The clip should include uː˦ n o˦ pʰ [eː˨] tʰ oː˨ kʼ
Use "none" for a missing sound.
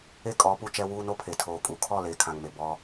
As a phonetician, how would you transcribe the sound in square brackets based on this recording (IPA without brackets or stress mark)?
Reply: e˨